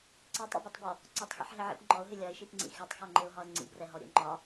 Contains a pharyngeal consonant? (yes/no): yes